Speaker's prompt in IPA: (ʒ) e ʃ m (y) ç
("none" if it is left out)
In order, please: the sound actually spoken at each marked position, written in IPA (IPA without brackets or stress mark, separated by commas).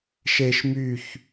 ʃ, y